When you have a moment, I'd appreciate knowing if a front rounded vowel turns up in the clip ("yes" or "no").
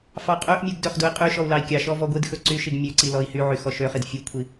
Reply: yes